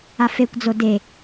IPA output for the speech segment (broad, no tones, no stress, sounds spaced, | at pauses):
a f e kʷ d͡z o d e